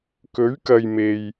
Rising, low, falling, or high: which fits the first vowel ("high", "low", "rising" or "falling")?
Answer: rising